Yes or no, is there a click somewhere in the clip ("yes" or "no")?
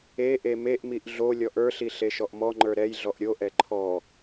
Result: yes